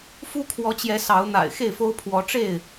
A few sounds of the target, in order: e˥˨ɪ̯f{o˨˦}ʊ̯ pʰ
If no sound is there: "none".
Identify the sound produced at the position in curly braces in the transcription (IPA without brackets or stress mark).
o˦